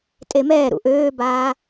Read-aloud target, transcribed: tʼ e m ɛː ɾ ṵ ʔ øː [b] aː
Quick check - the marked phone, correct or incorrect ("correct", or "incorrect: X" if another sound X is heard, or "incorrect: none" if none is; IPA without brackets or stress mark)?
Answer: correct